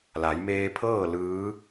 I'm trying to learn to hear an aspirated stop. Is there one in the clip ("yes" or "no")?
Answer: yes